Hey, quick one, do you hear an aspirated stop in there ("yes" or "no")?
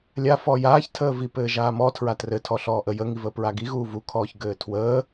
yes